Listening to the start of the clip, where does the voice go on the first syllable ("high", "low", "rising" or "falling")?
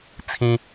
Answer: high